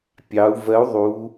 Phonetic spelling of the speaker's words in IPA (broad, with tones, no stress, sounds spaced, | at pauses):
pʲ ɑ˩˧ u̯ v ɜ˨˥ u̯ ðˤ u˩˧